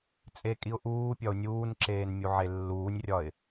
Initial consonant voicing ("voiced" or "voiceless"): voiceless